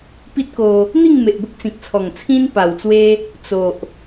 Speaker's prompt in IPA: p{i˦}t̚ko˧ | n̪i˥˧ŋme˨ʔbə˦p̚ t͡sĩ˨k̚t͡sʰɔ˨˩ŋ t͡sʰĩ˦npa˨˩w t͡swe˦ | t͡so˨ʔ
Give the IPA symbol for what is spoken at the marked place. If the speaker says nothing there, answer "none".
i˦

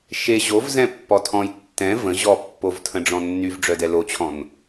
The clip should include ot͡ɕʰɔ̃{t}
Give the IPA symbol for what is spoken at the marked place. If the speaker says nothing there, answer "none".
n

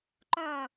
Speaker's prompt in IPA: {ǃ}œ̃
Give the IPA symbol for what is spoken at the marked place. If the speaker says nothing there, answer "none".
ǃ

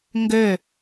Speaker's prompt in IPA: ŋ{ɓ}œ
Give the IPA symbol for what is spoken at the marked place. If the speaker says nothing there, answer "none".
ɡ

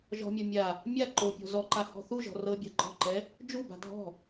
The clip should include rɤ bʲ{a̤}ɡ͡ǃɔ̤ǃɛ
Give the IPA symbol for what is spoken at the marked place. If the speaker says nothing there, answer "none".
a̤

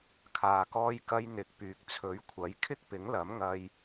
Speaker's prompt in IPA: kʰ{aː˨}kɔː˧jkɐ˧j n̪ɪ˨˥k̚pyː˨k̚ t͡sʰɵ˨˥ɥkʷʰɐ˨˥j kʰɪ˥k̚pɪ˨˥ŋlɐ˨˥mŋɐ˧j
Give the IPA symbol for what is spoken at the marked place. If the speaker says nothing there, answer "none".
aː˨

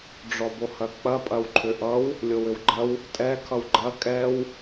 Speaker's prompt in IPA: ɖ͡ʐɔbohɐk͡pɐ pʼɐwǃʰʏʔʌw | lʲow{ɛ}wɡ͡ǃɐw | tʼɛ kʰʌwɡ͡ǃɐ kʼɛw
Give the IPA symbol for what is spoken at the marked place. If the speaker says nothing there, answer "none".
ʏ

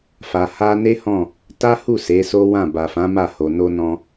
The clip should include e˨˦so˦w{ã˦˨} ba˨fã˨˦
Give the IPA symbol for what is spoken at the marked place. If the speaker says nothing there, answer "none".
ã˦˨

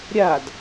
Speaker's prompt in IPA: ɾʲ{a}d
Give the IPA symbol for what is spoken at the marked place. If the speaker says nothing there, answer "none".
a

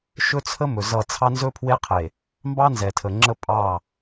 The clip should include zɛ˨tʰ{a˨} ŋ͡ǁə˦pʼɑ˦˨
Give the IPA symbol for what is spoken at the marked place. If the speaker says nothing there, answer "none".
ə˨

